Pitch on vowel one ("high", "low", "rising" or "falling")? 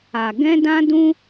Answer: low